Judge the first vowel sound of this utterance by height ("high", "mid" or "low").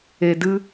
mid